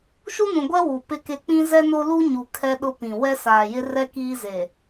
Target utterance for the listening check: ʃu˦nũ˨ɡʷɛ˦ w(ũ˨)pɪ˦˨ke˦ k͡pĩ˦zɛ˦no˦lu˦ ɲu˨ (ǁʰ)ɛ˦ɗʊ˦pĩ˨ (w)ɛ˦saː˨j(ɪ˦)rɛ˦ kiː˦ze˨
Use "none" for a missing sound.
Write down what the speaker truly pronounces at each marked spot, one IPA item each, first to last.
u˨, kʰ, w, ɪ˦

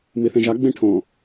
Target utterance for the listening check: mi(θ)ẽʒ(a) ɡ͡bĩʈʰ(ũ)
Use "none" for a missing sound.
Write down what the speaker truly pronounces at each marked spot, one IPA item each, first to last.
θ, a, õ

